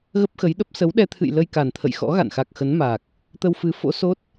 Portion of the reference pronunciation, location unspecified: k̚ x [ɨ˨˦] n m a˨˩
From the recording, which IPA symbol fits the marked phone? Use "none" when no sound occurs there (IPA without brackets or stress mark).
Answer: ə˨˦